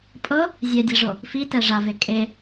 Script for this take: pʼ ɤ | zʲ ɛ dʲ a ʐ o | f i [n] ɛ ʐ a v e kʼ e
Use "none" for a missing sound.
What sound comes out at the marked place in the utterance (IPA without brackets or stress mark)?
t